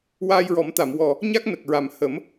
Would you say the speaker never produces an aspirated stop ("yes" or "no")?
yes